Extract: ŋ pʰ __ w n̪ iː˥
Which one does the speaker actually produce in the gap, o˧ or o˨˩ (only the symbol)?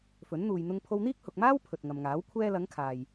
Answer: o˧